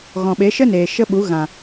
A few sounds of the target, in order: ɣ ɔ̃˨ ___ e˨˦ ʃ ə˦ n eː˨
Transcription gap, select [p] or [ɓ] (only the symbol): ɓ